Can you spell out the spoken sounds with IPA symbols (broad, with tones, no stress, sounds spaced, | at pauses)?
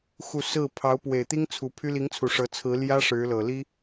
x u˥˧ s ɹ̩˥˩ pʰ ɑ˧˥ ʊ̯ p w e˨˩ ɪ̯ t̪ i˥ ŋ t͡sʰ u˧˥ pʰ y˥ l i˧˥ ŋ t͡sʰ u˨˩ ʂ ɤ˧˥ t͡sʰ ɹ̩˧˥ l j ä˥ ʂ ɻ̩˧˥ l ɤ˨˩ l i˥